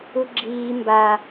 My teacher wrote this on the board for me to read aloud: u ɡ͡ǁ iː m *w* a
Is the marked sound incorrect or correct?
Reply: incorrect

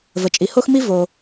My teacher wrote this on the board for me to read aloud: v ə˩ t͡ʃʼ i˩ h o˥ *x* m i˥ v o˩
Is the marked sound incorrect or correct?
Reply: correct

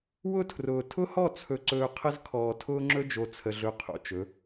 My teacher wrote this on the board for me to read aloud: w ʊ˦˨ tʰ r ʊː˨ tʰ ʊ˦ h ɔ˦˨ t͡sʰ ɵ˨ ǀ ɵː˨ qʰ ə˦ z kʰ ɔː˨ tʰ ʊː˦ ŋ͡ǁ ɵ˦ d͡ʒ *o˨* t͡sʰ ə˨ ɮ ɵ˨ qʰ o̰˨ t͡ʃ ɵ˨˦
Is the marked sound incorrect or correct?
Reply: correct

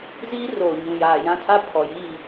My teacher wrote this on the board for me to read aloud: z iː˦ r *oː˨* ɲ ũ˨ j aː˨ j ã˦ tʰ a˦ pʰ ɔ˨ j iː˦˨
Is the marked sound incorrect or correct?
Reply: correct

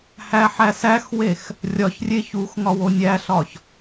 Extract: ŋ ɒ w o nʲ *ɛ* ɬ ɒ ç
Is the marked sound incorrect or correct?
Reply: incorrect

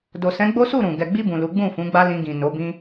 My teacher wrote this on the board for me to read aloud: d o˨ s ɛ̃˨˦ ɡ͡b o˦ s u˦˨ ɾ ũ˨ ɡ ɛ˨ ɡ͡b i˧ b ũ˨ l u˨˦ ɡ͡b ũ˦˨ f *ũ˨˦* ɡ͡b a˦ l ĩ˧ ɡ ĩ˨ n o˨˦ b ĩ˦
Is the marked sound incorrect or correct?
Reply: correct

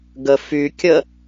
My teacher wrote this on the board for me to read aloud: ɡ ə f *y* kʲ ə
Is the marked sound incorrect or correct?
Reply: correct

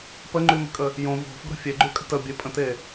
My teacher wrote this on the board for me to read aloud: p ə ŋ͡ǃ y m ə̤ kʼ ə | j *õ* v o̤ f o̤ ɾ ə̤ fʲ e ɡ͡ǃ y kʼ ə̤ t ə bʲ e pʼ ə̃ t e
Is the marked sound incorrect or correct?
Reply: correct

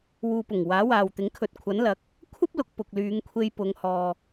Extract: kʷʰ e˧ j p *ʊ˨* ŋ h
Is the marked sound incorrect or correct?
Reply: incorrect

